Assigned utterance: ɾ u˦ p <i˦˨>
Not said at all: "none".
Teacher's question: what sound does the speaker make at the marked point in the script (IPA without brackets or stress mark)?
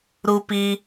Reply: i˦